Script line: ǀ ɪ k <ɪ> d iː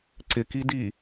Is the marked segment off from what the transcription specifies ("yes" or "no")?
yes